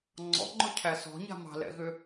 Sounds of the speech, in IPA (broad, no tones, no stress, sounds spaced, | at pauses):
ŋ͡ǀ ɔ̰ ŋ͡ǃ ʊ cʰ æ s ɔ̤ ɲ a̤ m ɑ̤ l ɛ̰ ɣ ʏ